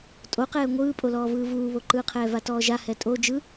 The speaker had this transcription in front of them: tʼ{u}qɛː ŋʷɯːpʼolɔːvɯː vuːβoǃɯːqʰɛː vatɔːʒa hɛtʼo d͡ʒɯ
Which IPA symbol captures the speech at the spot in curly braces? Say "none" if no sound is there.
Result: o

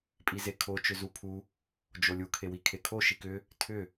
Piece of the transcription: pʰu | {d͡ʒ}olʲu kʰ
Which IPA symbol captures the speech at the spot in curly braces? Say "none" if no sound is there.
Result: d͡ʒ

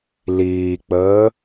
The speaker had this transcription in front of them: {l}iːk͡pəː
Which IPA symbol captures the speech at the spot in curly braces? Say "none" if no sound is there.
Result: l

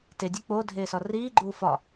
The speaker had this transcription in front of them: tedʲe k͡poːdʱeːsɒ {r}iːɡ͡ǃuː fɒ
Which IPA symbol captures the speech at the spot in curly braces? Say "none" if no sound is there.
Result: r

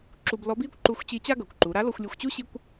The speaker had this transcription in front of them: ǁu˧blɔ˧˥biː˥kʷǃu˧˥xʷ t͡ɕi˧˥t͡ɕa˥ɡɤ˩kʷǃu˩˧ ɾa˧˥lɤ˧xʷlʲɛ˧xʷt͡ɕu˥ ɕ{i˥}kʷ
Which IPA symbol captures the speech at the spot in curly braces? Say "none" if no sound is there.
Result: i˥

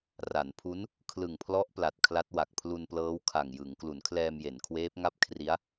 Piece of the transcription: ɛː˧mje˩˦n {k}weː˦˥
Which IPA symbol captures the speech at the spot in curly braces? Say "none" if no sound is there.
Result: kʰ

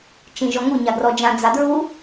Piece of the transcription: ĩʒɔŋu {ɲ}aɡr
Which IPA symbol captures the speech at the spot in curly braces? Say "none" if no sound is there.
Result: ɲ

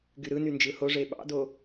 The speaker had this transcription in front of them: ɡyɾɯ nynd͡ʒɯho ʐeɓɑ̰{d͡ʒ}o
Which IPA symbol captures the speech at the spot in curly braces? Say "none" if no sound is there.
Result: d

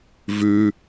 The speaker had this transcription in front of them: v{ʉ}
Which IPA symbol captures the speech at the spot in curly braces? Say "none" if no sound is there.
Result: ʉ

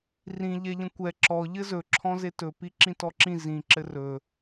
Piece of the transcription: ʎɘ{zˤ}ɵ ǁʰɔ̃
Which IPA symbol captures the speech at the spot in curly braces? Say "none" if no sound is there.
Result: z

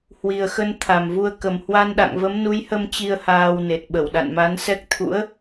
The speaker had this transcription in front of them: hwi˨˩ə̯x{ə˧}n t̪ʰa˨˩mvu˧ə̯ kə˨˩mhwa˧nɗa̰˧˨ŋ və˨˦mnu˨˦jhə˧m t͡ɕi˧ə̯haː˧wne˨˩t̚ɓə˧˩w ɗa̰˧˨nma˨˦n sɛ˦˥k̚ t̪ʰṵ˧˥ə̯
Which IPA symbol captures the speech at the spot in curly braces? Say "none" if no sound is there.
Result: ə˧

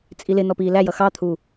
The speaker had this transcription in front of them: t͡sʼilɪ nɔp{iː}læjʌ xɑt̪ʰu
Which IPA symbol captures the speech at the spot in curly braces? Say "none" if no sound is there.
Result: iː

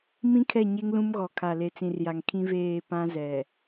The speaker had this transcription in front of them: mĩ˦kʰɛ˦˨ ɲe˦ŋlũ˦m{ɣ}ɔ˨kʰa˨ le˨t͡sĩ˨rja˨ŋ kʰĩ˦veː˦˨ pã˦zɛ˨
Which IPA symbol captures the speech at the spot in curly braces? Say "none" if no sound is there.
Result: ɣ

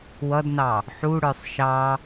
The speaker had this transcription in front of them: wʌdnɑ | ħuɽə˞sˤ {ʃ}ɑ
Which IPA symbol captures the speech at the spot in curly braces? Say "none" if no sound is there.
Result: ʃ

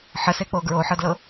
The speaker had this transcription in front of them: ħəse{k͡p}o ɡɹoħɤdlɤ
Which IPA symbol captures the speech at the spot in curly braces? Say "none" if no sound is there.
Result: k͡p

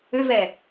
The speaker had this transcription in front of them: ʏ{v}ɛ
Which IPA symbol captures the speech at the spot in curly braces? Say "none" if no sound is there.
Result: v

